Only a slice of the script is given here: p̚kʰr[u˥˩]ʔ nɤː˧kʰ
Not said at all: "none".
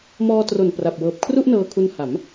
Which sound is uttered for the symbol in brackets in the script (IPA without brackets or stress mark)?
u˥˩